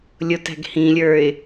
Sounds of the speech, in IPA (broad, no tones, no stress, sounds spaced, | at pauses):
lʲ ʊ t æ̤ ɡ h ĩ lʲ ə˞ ɪ̯